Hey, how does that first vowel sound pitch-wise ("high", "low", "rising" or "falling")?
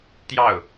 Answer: falling